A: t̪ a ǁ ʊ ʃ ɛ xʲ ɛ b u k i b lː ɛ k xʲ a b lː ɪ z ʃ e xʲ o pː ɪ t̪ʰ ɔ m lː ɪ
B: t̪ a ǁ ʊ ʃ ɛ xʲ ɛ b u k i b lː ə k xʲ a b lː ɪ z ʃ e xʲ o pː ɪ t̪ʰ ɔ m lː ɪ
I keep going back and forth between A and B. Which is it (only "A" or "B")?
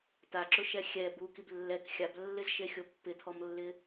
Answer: A